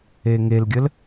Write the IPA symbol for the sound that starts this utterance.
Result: e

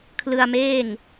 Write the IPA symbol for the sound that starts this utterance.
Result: kʰ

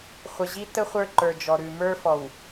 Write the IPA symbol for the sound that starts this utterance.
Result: χʷ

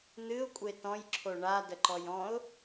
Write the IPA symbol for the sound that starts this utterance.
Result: n̪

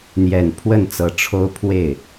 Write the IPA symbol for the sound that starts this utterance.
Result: n̪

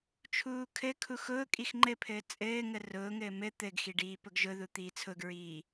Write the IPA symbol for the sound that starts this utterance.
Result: t͡ʃʰ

